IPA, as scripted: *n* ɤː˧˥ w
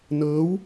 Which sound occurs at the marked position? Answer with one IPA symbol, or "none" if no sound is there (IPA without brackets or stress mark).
n